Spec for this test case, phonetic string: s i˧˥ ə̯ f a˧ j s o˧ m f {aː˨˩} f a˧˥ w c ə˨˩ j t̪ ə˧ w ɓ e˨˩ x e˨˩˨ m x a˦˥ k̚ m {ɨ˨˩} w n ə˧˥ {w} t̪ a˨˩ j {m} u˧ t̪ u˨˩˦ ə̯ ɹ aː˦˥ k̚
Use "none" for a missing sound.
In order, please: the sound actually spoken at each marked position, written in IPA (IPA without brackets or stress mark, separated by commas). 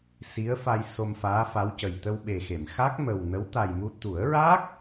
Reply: aː˧˥, ə˨˩, w, m